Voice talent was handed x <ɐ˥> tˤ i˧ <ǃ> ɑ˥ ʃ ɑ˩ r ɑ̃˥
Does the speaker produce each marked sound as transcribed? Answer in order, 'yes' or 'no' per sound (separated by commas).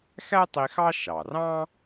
no, no